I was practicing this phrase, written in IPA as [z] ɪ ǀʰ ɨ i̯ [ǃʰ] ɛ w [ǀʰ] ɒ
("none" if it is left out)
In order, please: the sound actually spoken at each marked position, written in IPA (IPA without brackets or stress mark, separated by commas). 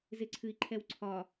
z, ǃʰ, ǀʰ